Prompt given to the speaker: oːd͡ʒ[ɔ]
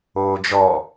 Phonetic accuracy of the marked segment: correct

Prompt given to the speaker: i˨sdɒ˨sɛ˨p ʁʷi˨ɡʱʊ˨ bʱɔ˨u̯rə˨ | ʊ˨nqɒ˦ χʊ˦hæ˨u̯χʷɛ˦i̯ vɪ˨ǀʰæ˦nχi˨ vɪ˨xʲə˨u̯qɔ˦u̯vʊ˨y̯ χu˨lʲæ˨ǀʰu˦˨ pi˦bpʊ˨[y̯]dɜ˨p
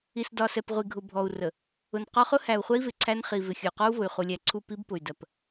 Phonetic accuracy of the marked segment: correct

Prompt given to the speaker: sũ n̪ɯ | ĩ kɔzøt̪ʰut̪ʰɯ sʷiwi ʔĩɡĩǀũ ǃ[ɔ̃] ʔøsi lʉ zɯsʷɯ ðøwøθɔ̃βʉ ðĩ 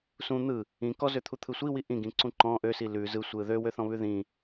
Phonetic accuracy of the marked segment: correct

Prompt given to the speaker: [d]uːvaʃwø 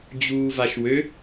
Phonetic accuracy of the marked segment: incorrect: d͡ʑ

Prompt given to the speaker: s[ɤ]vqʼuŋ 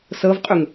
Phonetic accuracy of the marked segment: correct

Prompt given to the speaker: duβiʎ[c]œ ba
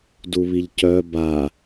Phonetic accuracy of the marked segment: correct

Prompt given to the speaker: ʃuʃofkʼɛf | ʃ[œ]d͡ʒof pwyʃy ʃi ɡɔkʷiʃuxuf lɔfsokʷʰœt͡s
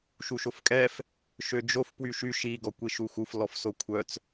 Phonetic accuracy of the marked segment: incorrect: ø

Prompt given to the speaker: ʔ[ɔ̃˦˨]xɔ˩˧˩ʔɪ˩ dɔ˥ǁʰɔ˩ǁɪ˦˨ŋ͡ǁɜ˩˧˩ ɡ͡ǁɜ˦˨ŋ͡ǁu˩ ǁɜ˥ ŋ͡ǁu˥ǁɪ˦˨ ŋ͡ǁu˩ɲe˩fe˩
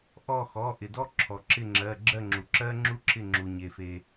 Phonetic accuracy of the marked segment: incorrect: ɔ˦˨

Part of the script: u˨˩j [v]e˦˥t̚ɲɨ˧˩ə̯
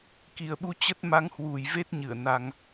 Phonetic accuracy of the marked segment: correct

